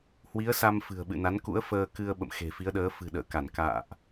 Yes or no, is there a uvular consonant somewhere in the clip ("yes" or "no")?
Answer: no